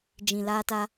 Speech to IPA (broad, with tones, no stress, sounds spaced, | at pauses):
d͡ʒ ĩ˨ l aː˧ t a˧